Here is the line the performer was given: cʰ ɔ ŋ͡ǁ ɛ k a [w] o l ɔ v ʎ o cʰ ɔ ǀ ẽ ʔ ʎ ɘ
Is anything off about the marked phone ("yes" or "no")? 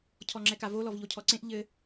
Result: yes